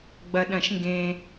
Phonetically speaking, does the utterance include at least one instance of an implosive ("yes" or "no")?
yes